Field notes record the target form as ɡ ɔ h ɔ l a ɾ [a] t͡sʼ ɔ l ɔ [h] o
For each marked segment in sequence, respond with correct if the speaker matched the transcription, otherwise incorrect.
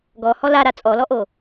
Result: correct, incorrect

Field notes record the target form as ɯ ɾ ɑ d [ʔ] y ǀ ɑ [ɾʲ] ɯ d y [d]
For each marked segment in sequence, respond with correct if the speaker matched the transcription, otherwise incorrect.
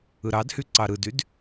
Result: incorrect, incorrect, correct

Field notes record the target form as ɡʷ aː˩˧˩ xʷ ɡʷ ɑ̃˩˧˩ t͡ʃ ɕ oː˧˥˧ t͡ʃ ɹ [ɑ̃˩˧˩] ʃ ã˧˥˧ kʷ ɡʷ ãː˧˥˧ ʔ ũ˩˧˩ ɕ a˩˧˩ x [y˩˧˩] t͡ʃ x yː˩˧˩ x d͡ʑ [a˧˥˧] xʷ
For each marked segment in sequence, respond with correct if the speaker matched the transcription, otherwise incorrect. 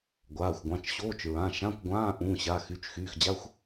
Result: incorrect, correct, correct

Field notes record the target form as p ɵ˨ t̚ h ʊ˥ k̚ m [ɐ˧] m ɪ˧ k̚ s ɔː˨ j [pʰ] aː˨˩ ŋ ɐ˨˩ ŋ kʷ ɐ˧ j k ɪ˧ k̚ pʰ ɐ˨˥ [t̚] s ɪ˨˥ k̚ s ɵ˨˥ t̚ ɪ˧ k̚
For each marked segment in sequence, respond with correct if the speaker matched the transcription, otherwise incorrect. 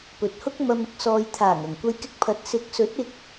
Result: correct, incorrect, correct

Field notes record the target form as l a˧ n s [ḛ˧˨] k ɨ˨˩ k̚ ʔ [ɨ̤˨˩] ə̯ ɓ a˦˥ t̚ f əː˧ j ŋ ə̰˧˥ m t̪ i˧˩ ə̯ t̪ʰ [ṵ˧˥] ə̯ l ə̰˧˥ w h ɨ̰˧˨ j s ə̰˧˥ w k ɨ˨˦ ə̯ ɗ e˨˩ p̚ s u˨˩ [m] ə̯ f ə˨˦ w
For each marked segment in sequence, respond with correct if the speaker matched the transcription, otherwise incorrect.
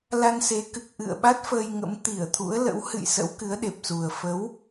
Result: incorrect, incorrect, correct, incorrect

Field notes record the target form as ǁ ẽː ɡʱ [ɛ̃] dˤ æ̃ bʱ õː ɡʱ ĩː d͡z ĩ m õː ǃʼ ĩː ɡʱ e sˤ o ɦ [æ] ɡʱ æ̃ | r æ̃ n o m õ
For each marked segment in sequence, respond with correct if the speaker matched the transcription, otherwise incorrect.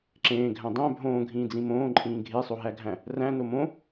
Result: incorrect, correct

